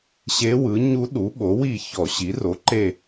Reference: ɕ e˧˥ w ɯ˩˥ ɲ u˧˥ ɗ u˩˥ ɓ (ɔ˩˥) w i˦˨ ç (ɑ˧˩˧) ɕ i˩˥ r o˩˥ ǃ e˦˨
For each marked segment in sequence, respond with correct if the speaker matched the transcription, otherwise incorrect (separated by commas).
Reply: incorrect, incorrect